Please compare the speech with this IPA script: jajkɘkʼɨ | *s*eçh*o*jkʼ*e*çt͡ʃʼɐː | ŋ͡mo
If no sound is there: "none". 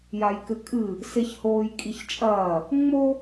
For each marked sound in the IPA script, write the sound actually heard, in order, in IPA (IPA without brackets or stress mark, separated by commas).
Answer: s, oː, i